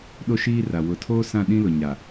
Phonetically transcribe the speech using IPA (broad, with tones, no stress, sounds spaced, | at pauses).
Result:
ɗ o˦ ʃ iː˦ r a˨ w ʊ˨ tʰ oː˦ s ã˦˨ ɗ ĩ˦ l ʊ˨ ɲ a˨